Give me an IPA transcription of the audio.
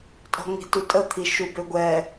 tʼɔ̤ŋi̤ tutʼət̪ʰi ʃubøɡʷɛ

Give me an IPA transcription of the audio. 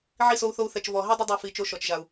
ʕi˦˨so˧u̯θo˧u̯θɛ˨t͡ʃ vɔ˨ ɦi˦dˤə˦dˤa˧ fi˨ t͡ʃo˧ʃɔ˨t͡ʃʒa˨u̯

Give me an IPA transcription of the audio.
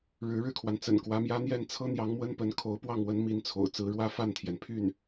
ɻɻ̩˧˥ɻɻ̩˥˩kʰwa˩nt͡sə̰˨˩n kwä˧˥mjä˥n̪jɛ˥˩n t͡sʰɤ˥n̪jɑ˧˥ŋmwə˥n pə˧˥nkʰo˧˥ʊ̯pwɑ˥˩ŋwə˧˥n mi˥nt͡sʰo̰˨˩ʊ̯ t͡sɹ̩˧˥ɻwä˥˧fa˥˩nt̪ʰjɛ˩n pʰy˥˩n

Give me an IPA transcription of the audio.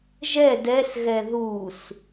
ʒɛ dɛsɣɛ ðus

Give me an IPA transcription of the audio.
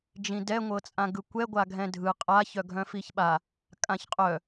d͡ʒĩdɛ ŋʷɤt͡sʼãɡɯkʷɛ ɡʷaɡʱɛ̃dʱɯ qʼa çœɡʱœ̃fiçɓa | kʼãçqʼœ

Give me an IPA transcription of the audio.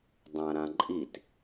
dˤãɾãǃʼit

